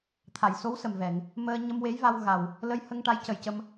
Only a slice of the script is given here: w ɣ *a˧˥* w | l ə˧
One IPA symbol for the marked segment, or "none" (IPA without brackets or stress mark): a˨˩